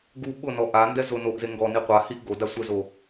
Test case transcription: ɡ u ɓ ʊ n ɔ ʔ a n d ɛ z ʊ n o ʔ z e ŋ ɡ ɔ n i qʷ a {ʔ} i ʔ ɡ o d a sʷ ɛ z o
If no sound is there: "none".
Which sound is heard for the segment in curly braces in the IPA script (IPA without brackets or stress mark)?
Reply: h